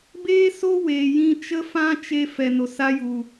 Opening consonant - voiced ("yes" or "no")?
yes